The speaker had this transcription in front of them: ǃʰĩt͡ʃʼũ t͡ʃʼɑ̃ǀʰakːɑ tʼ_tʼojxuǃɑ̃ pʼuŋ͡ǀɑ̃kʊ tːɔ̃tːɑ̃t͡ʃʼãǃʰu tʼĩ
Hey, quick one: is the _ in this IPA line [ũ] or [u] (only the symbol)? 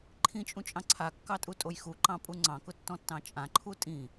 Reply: u